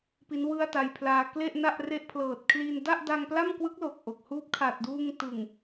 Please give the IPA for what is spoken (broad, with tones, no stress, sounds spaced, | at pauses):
p i˦˥ n w ɯ˥˩ a̯ t a˧ j pʰ l aː˧ k l e˥˩ ʔ n a˥˩ ʔ r e˦˥ ʔ pʰ l ɤː˨˩ t̚ kʰ l i˧ n d a˥˩ ʔ d a˧ ŋ p l a˥˩ m k w ɯ˦˥ k̚ l o˨˩ k̚ ʔ o˨˩ k̚ h uː˦˥ p̚ kʰ a˨˩ t̚ d uː˧ ŋ t ɯ˨˩ ŋ